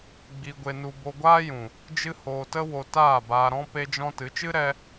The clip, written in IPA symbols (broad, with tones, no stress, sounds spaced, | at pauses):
ɡ͡b i˧ ɡʷ e˧ n u˧ b o˧ ɡʷ aː˦ j ũ˨ | d͡ʒ ɨ˦ h oː˧ t ə˦ w o˧ t aː˦˨ b aː˧ ɾ ɔ̃˦ p e˧ d͡ʒ ɔ̃˧ t ɨ˨˦ t͡ʃ ɨ˦ ɾ ɛ˧